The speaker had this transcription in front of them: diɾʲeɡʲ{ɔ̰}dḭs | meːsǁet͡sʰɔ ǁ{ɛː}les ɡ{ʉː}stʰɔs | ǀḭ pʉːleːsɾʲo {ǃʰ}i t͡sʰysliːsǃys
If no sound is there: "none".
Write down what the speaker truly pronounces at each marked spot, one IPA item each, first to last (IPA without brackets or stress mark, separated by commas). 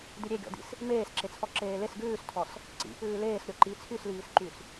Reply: ɔ̰, eː, ʉː, ǃ